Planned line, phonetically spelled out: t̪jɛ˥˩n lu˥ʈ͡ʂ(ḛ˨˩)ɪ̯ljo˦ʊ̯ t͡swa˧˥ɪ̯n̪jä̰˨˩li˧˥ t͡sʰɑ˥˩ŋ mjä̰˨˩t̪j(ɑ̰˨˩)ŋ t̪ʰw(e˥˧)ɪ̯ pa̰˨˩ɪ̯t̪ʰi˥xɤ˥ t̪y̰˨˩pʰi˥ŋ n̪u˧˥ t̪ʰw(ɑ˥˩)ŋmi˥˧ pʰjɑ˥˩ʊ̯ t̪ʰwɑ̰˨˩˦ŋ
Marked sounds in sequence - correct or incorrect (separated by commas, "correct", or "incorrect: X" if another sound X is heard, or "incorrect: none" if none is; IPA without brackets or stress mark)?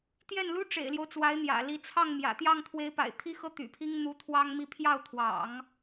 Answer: correct, incorrect: ɑ˥˩, incorrect: e˧˥, incorrect: ɑ˥